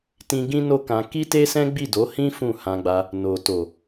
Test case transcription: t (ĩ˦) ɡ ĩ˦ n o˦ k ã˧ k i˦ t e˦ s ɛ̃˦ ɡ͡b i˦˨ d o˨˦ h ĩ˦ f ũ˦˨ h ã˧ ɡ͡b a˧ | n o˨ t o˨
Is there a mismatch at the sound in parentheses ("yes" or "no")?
no